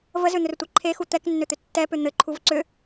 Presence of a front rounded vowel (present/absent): present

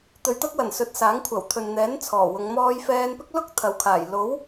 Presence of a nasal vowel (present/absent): absent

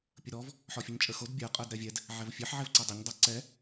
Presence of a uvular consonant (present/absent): present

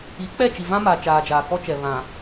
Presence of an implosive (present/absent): absent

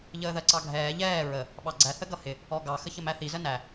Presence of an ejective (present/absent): absent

